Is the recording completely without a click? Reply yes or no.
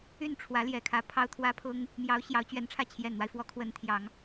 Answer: yes